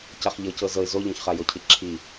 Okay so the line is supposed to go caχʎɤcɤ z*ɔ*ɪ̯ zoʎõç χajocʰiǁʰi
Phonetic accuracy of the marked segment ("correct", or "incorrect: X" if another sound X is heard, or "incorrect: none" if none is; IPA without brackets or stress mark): incorrect: ɤ